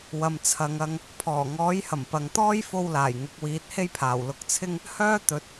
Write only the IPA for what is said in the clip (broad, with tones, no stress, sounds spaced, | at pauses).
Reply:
w ɐ˨ m t͡sʰ ɐ˨ ŋ ɐ˧ ŋ | pʰ ɔː˨˩ ŋ ɔː˨˥ j h ɐ˨˩ m p ɐ˨ ŋ t̪ ɔː˥ j f o˧ w l aː˨˩ j ŋ ʊ˨˥ k̚ w iː˨˥ t̚ h e˥ j pʰ aː˨˩ w l ʊ˧ k̚ t͡sʰ ɪ˥ ŋ | h œː˥ t̪ ɵ˨˥ t̚